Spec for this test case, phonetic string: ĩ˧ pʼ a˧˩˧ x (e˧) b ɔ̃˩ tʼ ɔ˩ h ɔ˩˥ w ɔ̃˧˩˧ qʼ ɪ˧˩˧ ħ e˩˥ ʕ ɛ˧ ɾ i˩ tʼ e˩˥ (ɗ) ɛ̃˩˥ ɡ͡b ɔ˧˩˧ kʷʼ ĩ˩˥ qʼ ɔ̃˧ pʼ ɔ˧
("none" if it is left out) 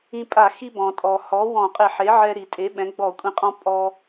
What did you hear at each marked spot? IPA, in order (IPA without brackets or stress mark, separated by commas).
i˧, ɓ